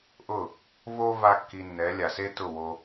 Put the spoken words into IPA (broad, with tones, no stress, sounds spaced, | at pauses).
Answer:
ʔ ʊ˥˩ | v o˥ v a˥ kː i˧ nː ɛ˩˥ lʲ a˩ s e˥ t ʊ˥˩ w o˧